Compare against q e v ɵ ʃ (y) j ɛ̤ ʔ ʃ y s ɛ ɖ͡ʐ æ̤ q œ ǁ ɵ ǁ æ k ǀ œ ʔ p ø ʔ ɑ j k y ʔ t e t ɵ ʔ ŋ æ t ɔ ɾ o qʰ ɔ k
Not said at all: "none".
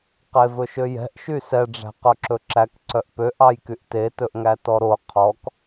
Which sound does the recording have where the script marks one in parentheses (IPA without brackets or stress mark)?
ø